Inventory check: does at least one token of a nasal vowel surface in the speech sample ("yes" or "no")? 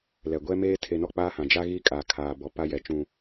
yes